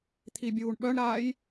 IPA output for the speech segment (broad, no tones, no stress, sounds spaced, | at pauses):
t̪ʰ i bʲ uː ɳ ɓ œ ɳ ɾ aː j